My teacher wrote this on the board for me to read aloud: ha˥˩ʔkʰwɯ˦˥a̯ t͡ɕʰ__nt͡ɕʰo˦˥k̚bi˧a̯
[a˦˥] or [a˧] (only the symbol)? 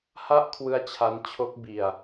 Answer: a˦˥